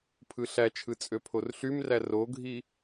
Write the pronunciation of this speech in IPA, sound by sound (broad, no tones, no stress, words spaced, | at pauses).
pʰɯɬæt͡ʃʰɯ t͡sʼøpʰorɬymræ roɡʱi